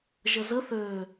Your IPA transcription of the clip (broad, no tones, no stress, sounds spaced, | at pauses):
ʒ ə z ə θ ø